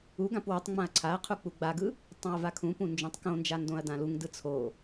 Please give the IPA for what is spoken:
uɡãp wutˤ ŋ͡mãɐ̯ǀʰaɐ̯qʰu k͡puɡ͡baɡɯ | tˤãɐ̯vakʰũpũ nd͡ʒũtˤkõnd͡ʒa ndõɐ̯dãluŋdɯ t͡sʰo

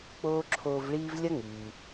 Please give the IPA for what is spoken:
k͡poː˥ǁʰoː˦vɭiː˥v lʲɐ˥ŋyː˨

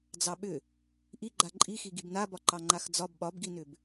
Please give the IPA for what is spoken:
d͡zɑɓʏ | ʔi ɡ͡ǃaǃʼixi ɡibnabɒ ǃɑŋ͡ǃaxd͡zɒb ɓɒbɡinʏb

